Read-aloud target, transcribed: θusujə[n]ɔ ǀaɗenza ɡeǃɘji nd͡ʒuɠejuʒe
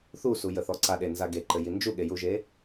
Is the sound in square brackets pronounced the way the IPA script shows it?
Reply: no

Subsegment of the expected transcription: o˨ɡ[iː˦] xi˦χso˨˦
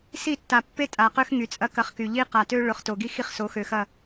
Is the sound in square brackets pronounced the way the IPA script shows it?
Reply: no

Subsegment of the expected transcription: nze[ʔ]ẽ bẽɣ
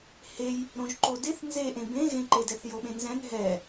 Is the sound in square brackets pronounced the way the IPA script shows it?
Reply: yes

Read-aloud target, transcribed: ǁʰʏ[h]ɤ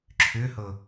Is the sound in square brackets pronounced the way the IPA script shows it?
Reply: yes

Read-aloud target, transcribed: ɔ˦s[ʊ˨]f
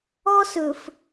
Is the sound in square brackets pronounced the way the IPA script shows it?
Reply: no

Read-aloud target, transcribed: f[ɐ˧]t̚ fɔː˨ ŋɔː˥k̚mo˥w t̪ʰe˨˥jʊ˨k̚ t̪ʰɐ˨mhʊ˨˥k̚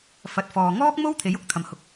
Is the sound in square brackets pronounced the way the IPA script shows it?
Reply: yes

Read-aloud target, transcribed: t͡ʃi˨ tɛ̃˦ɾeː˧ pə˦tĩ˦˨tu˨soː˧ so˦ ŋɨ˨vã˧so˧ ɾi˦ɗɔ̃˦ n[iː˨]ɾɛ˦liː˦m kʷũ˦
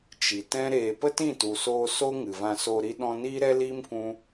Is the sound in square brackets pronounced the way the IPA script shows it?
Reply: no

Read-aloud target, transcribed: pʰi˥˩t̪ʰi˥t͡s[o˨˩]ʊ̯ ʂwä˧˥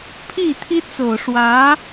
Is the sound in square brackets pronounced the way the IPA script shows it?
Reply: yes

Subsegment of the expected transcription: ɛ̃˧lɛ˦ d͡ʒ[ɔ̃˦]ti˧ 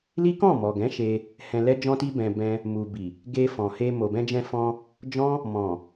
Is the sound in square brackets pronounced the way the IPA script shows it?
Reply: no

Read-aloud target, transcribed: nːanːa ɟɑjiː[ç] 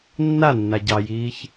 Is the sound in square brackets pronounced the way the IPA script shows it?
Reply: yes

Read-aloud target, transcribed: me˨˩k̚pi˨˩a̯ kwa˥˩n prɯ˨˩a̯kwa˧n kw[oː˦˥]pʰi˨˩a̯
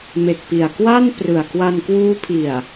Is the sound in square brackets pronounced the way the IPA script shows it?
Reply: no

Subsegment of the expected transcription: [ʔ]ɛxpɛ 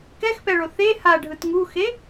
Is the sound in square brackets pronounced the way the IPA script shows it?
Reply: no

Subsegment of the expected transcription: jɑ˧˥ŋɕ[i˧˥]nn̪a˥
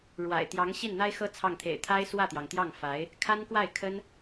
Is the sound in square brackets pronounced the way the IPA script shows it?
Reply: no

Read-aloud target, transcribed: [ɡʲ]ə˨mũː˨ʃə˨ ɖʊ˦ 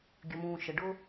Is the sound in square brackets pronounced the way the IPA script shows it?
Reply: yes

